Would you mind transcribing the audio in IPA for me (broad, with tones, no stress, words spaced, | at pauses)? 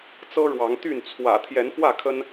t͡sɤ˦ɻwɑ˨˦ŋt̪y˥˨n t͡sʰwä̰˨˩ t̪ʰjɛ˨˦nfwä˥˨kʰə˦n